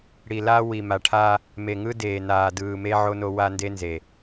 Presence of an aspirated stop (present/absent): present